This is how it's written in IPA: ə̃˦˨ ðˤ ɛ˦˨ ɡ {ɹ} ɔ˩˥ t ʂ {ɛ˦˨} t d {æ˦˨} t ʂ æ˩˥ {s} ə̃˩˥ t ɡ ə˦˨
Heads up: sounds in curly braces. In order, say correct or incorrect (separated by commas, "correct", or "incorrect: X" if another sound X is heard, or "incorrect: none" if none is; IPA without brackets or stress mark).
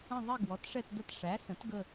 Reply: incorrect: w, correct, incorrect: ə˦˨, correct